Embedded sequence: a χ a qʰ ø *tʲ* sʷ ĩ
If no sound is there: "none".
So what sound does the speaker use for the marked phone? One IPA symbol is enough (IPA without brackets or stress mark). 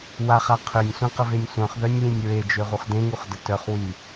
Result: nʲ